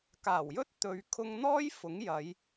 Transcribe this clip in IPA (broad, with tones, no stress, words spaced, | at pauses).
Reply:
kaː˨˩wjɵ˥t̚ t̪ɵ˧ɥ kʰʊ˧ŋn̪ɔː˥j fʊ˨˥ŋjɐ˨˧j